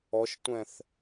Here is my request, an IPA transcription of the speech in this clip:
ɔ ʃ tʷ ɛ̃ θ

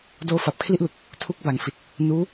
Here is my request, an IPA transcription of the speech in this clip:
d oː˧ f a˨˩ p̚ kʰ l i˥˩ ʔ l u˨˩ k̚ | tʰ u˦˥ k̚ b a˩˦ ŋ f i˨˩ t̚ | n uː˦˥

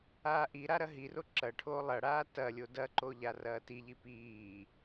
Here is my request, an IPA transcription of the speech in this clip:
aː ʔ i ɾ a ɾ ɐ ɦ i r o ǁ ɐ ʈʰ oː lˠ ɐ ɽ aː t ɐ lʲ o d ɐ ǃ o ʎ a r ɐː t i ʎ i p iː

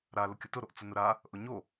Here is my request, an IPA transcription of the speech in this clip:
ɾ a l ʊ kʲ ʊ t ʊ ɾ o ʔ t͡s ʊ n ʊ ɾ a | ʔ ʊ ɲ o

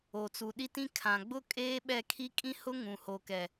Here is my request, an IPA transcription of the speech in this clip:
o˨ t͡s u˨ ɗ i˦ t ĩ˦ kʰ ã˨ ɡ͡b ʊ˦ kʼ eː˦ ɓ ɛ˦˨ kʰ i˦ kʼ ĩ˦ h ʊ˦ ŋ ũ˨ h o˨ k ɛ˨

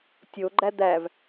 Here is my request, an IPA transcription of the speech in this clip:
tʲ o ɡ͡ǃ æ d̪ æ v

